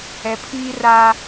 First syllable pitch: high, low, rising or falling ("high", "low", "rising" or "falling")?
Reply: low